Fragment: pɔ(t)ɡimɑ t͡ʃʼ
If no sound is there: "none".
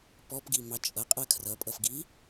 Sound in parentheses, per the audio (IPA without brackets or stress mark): p